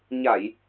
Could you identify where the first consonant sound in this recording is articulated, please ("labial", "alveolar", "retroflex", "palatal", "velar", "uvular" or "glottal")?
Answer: palatal